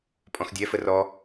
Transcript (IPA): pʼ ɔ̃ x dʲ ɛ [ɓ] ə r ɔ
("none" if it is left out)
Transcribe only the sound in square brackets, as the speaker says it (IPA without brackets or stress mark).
f